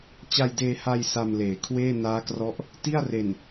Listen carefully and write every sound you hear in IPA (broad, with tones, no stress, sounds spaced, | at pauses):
t͡ɕ a˧ j d eː˧ h a˧ j s a˧ m l eː˩˦ kʰ w eː˥˩ n aː˦˥ k r ɔ˦˥ ʔ | t i˥˩ a̯ r e˨˩ n